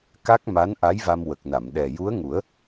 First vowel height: low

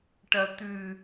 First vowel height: low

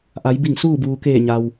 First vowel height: low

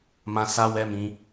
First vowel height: low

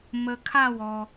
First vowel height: mid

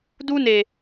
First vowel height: high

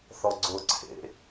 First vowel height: mid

